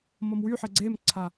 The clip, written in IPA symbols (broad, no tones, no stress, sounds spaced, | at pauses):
m ʌ m w y ħ e ɡ͡ǀ eː m ǀʰ a